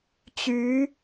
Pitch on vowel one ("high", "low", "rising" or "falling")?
rising